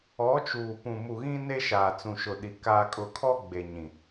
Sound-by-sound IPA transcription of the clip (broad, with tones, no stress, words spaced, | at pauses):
ɔ˨˦t͡ʃuː˨pũ˨ mu˨ɣĩ˦ne˦ ʃaː˨t͡sũ˨ʃʊ˨ɗi˨ kaː˨kʼʊ˨kʰɔ˦ ɡ͡be˨ɲĩ˨